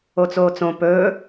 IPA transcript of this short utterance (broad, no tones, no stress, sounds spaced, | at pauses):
o t͡s oː t͡s õ p ɵː